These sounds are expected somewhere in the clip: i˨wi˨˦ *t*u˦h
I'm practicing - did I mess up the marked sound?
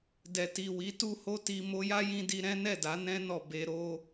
no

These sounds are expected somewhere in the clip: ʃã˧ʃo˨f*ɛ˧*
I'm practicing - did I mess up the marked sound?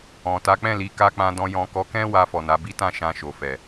yes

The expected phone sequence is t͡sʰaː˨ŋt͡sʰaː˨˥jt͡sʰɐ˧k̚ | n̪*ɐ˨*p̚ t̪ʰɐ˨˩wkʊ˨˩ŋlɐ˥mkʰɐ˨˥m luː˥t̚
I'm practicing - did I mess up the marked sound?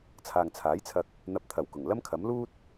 no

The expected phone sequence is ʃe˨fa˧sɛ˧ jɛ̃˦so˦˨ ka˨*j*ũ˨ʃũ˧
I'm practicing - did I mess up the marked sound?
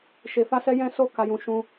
no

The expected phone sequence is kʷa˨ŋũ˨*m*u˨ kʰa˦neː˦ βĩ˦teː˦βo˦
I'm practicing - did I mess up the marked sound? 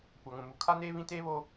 no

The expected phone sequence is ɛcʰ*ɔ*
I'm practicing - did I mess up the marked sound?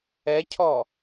no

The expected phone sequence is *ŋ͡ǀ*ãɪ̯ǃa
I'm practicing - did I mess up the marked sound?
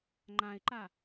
yes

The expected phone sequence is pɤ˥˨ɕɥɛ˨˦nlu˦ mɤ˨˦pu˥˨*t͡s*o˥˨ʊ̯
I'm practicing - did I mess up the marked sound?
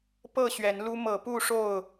yes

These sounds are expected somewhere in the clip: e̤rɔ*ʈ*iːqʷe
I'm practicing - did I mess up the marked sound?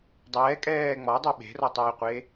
yes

